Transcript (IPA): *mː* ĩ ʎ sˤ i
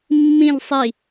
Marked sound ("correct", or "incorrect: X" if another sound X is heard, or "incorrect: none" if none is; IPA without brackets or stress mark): correct